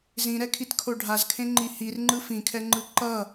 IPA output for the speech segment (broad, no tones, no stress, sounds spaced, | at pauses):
z ĩ ɾ ɛ kʰ i t kʰ o ɖʱ a z kʰ ẽ ŋ͡ǃ i h i r ŋ͡ǃ ɯ f ĩ kʰ ɛ ŋ͡ǃ ɯ ǃ ʌ